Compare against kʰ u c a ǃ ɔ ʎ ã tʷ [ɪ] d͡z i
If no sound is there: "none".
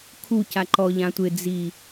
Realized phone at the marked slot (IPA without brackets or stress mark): ɪ